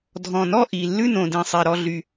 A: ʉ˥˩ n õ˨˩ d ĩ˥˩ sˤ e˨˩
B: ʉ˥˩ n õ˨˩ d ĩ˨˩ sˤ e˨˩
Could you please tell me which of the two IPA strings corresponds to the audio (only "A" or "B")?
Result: B